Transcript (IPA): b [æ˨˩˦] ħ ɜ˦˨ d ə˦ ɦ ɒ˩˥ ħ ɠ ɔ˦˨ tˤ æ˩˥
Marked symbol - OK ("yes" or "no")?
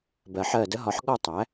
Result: no